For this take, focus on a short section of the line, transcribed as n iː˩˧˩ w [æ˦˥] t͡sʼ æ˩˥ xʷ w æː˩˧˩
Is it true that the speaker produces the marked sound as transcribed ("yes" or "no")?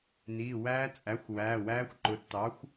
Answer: no